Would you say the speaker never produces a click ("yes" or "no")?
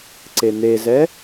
no